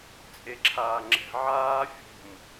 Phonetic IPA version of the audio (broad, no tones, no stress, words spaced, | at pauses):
t͡sʼeǁʰaːŋ͡ǁɛ̤ ʕaː fʲo̤m